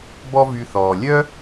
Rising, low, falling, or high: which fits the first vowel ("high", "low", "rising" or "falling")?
high